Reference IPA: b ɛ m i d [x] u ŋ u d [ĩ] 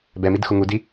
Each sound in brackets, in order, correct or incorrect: correct, incorrect

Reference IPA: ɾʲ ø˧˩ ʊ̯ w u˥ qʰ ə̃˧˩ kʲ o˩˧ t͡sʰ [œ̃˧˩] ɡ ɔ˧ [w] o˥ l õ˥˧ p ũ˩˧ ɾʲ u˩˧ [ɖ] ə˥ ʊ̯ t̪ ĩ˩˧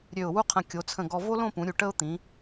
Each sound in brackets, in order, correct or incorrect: incorrect, incorrect, incorrect

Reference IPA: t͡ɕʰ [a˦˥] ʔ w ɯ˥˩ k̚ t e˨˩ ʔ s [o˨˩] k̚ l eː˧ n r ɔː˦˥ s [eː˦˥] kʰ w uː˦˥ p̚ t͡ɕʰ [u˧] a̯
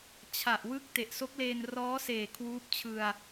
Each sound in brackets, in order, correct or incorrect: incorrect, incorrect, incorrect, incorrect

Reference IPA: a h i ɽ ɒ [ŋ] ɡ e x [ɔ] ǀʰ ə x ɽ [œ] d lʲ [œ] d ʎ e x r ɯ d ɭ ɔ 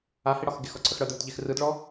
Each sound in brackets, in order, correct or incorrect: incorrect, correct, correct, incorrect

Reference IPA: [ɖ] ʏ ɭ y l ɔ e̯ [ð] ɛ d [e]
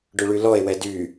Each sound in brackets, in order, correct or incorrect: correct, incorrect, incorrect

